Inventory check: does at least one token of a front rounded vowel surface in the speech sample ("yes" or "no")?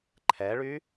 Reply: yes